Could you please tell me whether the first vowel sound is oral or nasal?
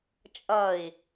oral